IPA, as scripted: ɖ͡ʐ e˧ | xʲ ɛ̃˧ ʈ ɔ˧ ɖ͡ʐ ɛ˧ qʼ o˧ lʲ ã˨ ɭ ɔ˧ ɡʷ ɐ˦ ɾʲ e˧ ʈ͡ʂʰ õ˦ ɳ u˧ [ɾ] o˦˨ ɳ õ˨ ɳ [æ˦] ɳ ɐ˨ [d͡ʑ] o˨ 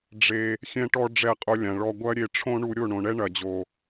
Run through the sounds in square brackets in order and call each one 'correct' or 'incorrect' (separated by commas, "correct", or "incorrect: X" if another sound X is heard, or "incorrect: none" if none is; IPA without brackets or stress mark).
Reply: incorrect: ɾʲ, incorrect: ɛ˦, correct